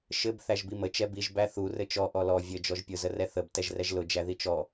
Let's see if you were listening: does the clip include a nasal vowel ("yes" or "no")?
no